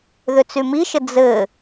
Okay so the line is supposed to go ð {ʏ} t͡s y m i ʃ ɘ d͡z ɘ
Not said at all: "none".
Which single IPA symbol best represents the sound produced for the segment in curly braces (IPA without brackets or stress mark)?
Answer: ʏ